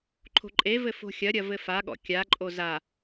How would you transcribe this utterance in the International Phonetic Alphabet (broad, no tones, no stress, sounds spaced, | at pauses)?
ǃʰ o̤ ǃʼ e v ɘ f o̤ xʲ ɐ ɾʲ ɐ v ɘ f a ɠ ɔ̰ kʲ a ǃʼ o z a